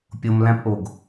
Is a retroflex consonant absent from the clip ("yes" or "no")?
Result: yes